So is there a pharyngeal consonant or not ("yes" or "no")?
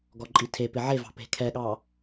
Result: yes